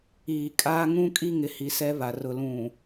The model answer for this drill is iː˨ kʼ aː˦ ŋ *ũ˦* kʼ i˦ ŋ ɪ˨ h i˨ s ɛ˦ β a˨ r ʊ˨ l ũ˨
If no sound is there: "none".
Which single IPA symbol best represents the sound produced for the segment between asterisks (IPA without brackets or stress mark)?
ũ˦